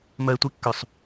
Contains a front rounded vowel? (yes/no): yes